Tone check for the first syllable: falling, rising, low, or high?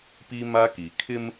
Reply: high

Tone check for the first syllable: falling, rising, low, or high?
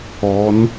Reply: rising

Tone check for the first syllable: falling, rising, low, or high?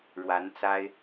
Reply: rising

